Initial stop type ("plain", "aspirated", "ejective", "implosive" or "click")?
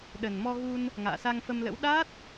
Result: implosive